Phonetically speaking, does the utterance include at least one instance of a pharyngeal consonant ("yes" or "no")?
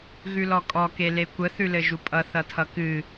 no